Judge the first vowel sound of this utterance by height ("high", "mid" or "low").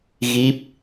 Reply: high